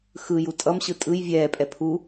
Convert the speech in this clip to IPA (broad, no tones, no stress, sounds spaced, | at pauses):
x ɯ j u tʼ ʌ m ɕ ɯ tʼ ɯ j vʲ ɛː pʼ ɛ pʰ u